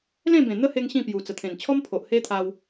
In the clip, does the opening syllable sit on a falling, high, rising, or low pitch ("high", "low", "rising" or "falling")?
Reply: falling